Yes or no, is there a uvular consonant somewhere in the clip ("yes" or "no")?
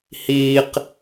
yes